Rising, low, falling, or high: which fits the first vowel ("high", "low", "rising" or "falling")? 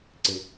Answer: low